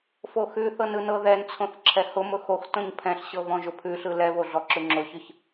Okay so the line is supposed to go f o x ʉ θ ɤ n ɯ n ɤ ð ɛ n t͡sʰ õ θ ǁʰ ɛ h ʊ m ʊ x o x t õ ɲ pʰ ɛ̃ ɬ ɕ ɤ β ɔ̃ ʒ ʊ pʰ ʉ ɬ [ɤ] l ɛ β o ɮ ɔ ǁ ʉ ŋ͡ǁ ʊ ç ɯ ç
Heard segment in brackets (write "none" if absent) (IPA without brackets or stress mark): ɯ